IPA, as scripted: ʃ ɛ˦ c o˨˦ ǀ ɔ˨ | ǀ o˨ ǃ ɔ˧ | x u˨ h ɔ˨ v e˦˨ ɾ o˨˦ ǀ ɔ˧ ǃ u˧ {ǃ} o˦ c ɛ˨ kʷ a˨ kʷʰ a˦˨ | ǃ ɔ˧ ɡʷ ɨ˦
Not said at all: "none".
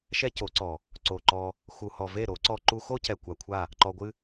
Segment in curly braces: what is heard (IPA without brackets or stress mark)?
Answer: x